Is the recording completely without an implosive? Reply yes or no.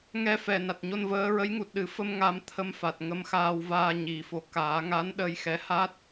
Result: no